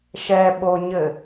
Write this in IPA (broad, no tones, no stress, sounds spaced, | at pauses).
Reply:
ʃ ɛ ɓ o ɲ ɘ